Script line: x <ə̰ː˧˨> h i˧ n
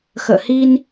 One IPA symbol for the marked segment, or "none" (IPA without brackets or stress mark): ə̰ː˧˨